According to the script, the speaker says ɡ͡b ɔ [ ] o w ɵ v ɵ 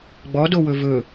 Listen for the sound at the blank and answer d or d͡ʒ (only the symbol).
d